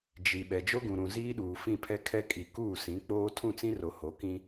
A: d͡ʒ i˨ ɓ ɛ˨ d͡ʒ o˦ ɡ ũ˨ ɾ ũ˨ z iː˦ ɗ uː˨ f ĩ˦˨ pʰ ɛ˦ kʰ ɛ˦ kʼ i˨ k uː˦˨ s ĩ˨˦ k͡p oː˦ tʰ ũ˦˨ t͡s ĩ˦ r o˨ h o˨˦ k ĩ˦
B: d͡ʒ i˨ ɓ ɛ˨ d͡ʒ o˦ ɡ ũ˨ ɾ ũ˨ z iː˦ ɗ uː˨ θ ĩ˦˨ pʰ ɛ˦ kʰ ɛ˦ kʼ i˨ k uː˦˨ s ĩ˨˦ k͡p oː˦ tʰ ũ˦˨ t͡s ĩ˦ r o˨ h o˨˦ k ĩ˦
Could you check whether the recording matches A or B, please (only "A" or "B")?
A